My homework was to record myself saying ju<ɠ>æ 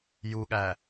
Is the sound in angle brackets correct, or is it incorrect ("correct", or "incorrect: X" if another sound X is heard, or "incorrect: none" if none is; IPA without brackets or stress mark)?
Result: correct